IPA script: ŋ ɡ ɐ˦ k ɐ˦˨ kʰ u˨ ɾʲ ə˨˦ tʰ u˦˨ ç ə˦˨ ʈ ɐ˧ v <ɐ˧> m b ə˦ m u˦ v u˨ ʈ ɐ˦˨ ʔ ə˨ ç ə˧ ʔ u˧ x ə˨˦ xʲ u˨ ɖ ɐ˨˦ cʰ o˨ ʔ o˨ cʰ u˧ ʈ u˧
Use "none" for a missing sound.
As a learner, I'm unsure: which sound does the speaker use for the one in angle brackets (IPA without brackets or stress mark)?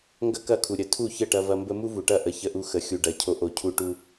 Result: ɐ˧